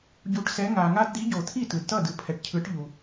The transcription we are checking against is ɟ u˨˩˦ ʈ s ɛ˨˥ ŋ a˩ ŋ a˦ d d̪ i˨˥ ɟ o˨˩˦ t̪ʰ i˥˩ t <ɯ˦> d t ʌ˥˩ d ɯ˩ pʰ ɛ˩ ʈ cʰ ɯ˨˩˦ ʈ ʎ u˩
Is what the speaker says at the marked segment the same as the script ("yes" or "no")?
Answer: no